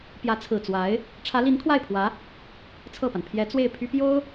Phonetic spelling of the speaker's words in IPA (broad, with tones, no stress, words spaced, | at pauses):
pjä˧˥t͡sʰɹ̩˨˩ t͡swa˧˥ɪ̯ | ʈ͡ʂʰä˧˥li˧˥nkʰwa˥˩ɪ̯pʰwä˧˥ | t͡sʰɤ˥˩pa˩n pʰjɛ˧˥ t͡swe˥˩ɪ̯pʰy˥pjo˥ʊ̯